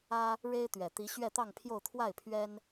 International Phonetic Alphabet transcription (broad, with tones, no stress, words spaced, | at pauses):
ä˥ | ɻe˥ɪ̯t̪ɥɛ˨˩t̪i˧˥ ɕɥɛ˥˧t̪ɑ˥˧ŋpʰjo˥˧ʊ̯ t̪ʰwa˥˩ɪ̯pʰɥɛ˥n